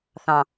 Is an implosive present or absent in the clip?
absent